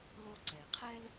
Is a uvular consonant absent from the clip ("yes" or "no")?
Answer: no